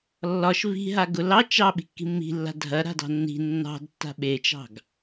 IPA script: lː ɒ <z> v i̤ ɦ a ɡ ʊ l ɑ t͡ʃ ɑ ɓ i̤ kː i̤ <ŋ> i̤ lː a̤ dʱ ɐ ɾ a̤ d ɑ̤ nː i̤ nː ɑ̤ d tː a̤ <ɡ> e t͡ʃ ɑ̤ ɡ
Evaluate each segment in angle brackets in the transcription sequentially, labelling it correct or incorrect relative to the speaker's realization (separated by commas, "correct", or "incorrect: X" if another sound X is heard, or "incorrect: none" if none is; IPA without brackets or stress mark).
incorrect: ʃ, incorrect: mː, incorrect: ɓ